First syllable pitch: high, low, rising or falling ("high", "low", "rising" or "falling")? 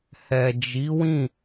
low